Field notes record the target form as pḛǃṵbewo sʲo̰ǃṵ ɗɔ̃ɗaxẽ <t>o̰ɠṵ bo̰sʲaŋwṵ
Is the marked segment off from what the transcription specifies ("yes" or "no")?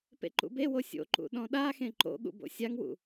yes